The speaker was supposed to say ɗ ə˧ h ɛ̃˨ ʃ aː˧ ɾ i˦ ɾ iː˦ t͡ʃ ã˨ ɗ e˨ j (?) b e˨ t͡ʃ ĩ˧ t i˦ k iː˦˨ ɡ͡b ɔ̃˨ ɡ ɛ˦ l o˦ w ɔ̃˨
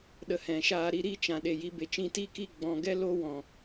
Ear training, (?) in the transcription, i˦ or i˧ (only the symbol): i˧